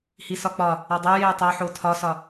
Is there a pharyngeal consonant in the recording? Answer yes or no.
yes